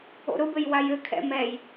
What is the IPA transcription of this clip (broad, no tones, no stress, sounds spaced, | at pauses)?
o̰ ɾ ʊ b ɘ j w a j ɘ kʰ ɛ̰ m ɛ j